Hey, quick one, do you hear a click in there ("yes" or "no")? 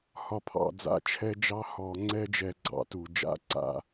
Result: yes